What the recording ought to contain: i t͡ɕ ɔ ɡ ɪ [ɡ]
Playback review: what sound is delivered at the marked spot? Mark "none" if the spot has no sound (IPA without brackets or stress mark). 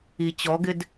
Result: d